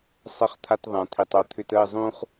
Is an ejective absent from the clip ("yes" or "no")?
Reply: yes